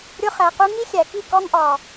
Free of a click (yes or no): yes